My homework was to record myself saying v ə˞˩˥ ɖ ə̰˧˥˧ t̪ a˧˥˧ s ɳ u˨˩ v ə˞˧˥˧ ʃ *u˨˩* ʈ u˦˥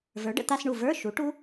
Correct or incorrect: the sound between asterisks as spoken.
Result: incorrect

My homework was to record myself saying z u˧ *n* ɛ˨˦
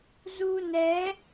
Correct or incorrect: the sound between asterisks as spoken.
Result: correct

